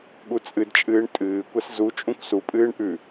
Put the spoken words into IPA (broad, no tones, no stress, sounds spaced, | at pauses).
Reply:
ɠ u t͡sʼ ɨ d t͡ʃʼ ɨː ɳ tʼ ɨː kʷ ɐ s z u t͡ʃʼ ũ kʷ s u pʼ ɨː ɳ ʔ ʉ